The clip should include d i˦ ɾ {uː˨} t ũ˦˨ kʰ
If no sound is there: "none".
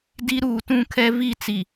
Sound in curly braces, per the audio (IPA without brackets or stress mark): uː˨